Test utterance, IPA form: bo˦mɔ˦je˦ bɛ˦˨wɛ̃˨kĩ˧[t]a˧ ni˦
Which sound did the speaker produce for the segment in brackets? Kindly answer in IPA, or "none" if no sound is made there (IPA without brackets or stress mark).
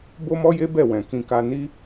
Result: k